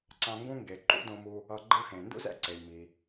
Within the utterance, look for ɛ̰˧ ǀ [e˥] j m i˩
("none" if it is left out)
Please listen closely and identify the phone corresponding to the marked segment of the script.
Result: e˩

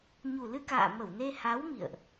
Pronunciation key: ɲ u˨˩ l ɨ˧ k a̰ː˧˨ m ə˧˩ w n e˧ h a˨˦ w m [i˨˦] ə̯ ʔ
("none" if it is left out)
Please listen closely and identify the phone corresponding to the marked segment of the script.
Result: ḭ˧˨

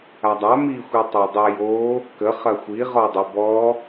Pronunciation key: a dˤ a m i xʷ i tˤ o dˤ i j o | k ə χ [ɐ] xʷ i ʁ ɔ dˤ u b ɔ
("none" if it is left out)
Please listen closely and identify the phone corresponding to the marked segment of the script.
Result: ɐ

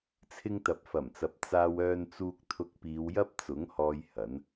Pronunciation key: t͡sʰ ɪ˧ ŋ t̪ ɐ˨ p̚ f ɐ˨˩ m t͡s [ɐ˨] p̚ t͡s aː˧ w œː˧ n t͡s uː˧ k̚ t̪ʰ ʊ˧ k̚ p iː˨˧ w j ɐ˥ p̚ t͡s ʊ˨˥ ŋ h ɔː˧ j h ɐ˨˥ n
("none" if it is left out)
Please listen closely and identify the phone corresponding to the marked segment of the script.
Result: ɐ˨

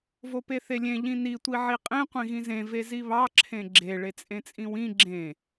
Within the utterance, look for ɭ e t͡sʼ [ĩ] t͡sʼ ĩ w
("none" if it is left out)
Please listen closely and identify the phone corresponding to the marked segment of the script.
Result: ẽ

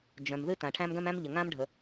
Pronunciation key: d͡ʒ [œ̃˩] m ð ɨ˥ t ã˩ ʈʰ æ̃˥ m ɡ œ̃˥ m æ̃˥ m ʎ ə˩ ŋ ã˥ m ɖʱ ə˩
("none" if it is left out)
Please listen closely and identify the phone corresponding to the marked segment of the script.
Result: œ̃˩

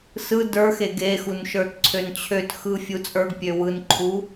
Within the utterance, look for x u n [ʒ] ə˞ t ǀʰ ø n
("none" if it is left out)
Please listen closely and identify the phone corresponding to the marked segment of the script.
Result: ʃ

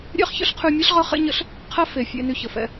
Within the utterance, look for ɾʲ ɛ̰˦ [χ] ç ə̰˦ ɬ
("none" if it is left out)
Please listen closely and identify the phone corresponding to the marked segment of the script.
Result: χ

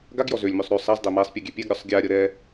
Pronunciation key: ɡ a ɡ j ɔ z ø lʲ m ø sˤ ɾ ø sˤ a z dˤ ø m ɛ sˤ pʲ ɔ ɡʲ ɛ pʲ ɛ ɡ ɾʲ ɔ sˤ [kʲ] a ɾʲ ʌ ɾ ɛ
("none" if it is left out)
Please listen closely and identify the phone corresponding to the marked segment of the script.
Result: ɡʲ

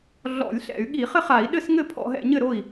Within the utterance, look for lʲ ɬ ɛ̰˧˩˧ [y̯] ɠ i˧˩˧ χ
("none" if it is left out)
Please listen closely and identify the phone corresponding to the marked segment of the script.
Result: y̯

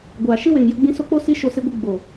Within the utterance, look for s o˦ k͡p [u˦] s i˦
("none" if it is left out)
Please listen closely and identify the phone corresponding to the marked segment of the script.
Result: o˦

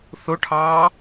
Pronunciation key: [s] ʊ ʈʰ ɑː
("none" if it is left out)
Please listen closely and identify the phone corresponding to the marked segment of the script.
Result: θ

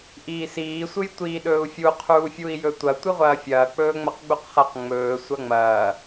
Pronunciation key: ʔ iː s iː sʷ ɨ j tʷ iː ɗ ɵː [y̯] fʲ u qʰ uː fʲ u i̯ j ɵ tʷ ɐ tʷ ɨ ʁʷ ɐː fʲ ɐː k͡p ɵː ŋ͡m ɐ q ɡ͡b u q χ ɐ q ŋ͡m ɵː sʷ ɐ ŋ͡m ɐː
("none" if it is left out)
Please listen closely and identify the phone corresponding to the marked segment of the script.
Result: u̯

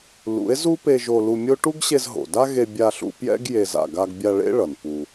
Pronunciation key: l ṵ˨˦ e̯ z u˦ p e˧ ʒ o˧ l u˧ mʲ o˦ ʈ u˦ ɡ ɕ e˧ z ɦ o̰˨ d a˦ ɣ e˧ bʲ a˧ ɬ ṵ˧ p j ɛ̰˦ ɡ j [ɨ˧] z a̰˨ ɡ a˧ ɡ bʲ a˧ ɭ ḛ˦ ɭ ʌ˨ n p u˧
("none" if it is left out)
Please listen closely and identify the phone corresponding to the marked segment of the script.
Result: e˧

